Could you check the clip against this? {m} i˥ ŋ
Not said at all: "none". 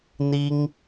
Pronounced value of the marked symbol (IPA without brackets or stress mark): n̪